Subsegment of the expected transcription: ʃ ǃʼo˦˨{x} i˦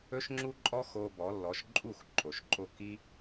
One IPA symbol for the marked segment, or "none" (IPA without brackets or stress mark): k